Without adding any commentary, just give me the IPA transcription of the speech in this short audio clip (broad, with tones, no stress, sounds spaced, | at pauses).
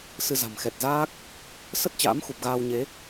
s ɨ˧ z a̤˨˩ m x ɛ˨˩ t̚ z aː˦˥ k̚ | s ə˦˥ t̚ t͡ɕ a̰ː˧˥ m x u˨˩ p̚ ɣ aː˧ w ɲ e˨˦